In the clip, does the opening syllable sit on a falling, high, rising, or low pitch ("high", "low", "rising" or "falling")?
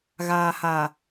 low